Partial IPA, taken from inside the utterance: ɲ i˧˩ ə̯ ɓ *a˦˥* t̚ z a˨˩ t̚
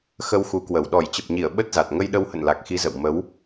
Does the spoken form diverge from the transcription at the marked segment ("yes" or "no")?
yes